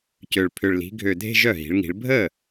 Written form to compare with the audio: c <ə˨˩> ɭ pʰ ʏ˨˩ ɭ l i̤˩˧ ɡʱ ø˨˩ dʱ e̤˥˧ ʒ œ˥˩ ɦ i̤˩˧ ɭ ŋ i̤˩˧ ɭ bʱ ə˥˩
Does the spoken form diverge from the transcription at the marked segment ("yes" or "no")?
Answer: yes